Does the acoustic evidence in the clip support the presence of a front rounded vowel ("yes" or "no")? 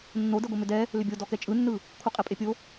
yes